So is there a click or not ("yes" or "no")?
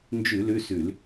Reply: no